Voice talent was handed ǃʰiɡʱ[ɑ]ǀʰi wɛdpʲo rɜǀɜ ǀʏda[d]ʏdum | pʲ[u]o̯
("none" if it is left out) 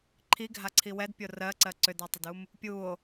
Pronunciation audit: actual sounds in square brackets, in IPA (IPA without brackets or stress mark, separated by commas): a, tˤ, u